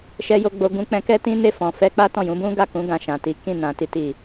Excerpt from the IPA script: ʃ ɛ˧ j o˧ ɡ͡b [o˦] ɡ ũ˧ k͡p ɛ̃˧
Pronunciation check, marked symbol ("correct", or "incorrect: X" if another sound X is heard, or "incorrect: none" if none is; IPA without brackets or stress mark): incorrect: o˧